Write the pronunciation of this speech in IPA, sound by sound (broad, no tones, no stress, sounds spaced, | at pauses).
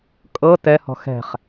kʼ ɤ t ɛ h ɔ̤ x ɛ̤ χ